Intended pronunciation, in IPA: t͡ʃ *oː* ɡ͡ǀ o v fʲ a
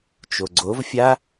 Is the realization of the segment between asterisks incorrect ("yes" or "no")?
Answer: yes